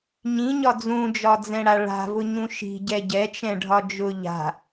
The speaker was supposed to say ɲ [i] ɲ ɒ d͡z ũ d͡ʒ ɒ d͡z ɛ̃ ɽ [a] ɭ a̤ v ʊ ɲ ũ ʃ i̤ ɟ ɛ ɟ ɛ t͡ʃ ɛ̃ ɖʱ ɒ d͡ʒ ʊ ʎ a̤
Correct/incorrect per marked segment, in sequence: incorrect, correct

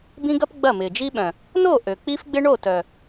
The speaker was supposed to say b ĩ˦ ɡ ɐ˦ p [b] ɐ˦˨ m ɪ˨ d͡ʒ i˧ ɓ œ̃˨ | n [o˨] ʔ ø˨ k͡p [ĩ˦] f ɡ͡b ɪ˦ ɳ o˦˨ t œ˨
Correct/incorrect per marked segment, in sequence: incorrect, incorrect, incorrect

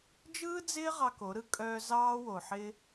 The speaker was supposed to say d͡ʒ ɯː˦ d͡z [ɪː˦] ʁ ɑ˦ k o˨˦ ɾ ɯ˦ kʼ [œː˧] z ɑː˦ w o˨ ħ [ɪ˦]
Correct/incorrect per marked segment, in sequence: correct, correct, correct

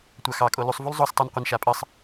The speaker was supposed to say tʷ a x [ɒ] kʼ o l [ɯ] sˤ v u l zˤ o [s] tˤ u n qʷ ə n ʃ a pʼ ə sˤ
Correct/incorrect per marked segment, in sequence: incorrect, incorrect, correct

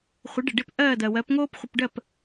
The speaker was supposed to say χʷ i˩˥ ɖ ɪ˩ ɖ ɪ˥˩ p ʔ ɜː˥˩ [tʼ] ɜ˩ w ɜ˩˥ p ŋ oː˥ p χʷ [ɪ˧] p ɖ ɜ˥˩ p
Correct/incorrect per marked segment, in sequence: incorrect, correct

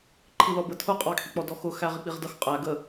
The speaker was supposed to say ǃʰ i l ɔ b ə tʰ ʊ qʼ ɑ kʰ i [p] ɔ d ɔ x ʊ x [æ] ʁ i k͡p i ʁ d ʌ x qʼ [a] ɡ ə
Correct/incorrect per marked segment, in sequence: incorrect, correct, incorrect

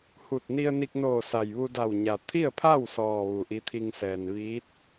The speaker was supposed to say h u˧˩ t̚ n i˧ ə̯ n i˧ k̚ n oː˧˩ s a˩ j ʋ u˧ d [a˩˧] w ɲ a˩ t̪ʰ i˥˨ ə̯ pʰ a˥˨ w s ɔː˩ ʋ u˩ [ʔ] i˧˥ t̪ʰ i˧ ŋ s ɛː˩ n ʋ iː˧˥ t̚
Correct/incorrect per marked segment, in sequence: incorrect, correct

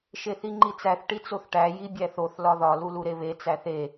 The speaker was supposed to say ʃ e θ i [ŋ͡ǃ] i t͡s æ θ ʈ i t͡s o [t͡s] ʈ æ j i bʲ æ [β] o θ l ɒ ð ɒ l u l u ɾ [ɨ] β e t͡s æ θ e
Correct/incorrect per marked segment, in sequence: correct, incorrect, incorrect, incorrect

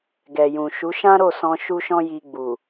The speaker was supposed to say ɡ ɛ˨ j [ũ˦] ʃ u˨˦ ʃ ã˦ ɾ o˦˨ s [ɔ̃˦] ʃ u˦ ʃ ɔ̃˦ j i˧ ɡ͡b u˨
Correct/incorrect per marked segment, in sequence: incorrect, incorrect

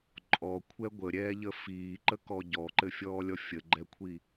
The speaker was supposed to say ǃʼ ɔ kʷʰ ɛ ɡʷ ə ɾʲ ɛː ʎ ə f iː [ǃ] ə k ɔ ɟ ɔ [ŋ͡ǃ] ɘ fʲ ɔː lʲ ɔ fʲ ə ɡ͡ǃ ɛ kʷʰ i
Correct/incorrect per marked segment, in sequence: correct, incorrect

